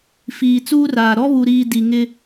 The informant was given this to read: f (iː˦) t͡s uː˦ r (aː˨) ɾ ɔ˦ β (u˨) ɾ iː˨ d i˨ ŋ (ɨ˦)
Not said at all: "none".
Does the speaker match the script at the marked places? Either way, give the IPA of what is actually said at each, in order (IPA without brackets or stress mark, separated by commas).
iː˨, aː˨, u˨, ɪ˦